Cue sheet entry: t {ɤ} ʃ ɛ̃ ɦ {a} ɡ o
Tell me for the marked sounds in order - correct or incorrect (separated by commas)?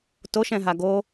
incorrect, correct